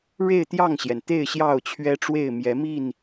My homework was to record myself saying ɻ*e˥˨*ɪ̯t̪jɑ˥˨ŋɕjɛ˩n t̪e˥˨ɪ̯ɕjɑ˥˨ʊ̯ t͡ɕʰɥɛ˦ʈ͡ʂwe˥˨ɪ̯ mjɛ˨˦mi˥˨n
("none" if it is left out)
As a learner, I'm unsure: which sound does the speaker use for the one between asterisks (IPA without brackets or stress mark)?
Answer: e˥˨